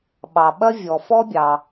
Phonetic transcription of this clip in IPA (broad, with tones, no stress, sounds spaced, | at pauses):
ɓ ɑ˩ ɓ ɐ˥ vʲ ɔ˩ f ɔ˥ bʲ ɑ˩